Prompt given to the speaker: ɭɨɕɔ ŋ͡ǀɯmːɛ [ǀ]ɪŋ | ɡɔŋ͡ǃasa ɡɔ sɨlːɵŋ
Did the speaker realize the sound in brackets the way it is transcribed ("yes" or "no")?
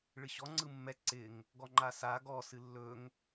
yes